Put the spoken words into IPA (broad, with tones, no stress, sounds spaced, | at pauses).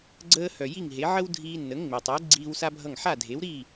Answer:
ɡ͡ǀ əː˧ h œ˩ j i˥˩ ŋ ɦ e˩˥ ʕ ə˥ w dʱ iː˧ nː ə˩˥ ŋ ŋ͡m e˩ tˤ əː˩˥ ɡ͡ǀ iː˧ w s a˥ bʱ ʌ˥˩ ŋ ħ a˥˩ dʱ e˩˥ w ɾ iː˥˩